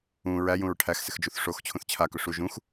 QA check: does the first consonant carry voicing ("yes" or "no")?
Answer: yes